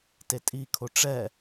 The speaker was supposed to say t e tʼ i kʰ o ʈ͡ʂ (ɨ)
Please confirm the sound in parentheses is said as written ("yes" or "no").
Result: no